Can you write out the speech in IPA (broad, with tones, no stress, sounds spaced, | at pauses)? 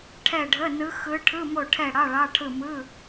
ʈʰ ɛ˦˨ ɖʱ ə˧˥˧ n ɯ˧˥ x ɯ˧˥ ʈʰ ɯ˧˥˧ m o˦˨ ʈʰ ɛ˦˨ ɽ ɑ˧˥˧ ɭ ɑ˧˥˧ ʈʰ ɯ˦˨ m ɯ˧˥˧